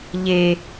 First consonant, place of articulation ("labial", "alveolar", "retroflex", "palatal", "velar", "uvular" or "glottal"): palatal